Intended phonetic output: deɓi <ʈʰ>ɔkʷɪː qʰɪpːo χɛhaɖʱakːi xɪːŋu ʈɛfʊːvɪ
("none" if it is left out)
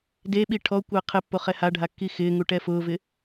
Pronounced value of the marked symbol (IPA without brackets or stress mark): ʈʰ